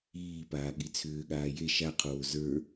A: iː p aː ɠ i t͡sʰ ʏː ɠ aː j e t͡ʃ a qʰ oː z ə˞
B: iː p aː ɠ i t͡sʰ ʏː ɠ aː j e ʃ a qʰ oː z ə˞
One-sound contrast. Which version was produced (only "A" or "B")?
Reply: B